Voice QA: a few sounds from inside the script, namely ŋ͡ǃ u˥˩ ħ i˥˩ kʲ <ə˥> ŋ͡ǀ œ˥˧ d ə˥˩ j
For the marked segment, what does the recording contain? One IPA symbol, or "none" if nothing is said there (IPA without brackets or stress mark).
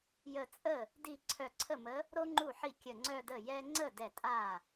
ə˧˩